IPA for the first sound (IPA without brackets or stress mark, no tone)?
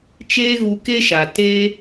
t͡ʃ